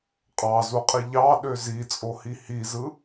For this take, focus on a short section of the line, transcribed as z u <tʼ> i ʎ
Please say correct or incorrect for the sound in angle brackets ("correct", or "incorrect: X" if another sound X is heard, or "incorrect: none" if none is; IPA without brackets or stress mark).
incorrect: qʼ